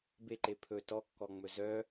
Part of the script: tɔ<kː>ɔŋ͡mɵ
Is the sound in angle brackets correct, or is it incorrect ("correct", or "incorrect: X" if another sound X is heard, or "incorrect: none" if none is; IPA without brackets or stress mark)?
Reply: correct